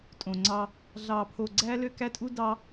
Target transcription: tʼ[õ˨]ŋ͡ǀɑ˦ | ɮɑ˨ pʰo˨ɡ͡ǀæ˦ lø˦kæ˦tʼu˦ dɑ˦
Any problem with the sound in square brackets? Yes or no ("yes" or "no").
no